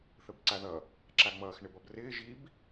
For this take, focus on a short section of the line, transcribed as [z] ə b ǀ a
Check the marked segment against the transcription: incorrect: θ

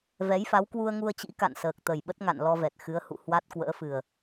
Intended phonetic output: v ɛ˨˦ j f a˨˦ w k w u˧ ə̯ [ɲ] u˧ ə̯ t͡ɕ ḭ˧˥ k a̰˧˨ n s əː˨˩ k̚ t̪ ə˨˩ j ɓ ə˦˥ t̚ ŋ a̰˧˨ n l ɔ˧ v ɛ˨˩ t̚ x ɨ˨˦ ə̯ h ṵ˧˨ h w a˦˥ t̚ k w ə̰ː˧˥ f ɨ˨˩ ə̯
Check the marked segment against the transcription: incorrect: ŋ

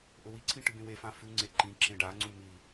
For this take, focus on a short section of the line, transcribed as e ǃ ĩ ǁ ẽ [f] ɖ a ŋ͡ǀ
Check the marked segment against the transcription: incorrect: none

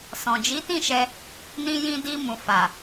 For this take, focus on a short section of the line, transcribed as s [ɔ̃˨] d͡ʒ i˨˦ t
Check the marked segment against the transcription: correct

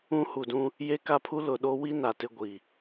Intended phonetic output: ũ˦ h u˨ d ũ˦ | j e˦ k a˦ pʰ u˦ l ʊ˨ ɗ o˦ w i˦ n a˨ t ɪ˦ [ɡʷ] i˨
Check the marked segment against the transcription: correct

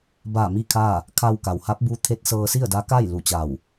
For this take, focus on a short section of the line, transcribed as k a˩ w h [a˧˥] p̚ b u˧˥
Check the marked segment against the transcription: correct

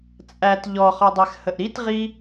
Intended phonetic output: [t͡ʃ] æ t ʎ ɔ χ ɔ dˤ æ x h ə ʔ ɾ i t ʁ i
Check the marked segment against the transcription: incorrect: t͡sʼ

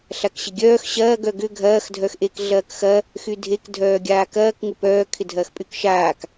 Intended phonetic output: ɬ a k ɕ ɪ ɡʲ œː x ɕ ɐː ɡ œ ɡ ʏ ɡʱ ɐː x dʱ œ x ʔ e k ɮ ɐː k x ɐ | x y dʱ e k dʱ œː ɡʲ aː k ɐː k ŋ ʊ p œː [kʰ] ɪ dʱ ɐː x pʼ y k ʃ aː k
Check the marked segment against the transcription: correct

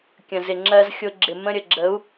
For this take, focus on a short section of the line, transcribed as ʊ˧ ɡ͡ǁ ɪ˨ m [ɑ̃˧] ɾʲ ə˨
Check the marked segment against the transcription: incorrect: ə̃˧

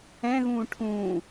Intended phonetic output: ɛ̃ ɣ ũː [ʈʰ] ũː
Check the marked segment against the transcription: correct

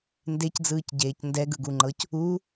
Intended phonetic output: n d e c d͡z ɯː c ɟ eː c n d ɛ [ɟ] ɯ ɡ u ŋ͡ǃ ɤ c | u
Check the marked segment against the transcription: incorrect: ɡ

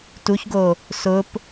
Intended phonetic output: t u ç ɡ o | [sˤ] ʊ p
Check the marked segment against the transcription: incorrect: s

